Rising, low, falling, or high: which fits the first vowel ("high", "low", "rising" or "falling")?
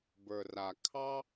low